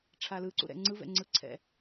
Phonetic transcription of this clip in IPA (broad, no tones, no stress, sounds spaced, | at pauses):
ʈ͡ʂʰ a l ɯ ǀ ṵ ɾ ɛ̰ ŋ͡ǀ ɯ v ɛ̰ ŋ͡ǀ ɯ ǀʰ ɛ̰